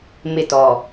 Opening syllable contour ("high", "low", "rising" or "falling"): falling